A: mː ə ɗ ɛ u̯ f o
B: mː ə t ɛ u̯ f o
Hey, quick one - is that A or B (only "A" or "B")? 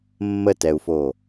B